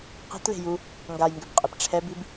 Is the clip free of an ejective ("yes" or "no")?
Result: no